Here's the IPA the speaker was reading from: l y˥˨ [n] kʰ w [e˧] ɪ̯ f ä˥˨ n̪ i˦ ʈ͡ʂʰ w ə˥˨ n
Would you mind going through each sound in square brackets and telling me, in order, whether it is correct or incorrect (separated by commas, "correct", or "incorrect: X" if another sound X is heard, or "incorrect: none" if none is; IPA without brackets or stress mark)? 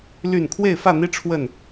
correct, incorrect: e˥˨